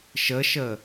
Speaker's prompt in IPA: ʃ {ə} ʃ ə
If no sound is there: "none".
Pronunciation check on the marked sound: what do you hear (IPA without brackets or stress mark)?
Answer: ə